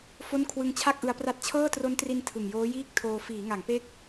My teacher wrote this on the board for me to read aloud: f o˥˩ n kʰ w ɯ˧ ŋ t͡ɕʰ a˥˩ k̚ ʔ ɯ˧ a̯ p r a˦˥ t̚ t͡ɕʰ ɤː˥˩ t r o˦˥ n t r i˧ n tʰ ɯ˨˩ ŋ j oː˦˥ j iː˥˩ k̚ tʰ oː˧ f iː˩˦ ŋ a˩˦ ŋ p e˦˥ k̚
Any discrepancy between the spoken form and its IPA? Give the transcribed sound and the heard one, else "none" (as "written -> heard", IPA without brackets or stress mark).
none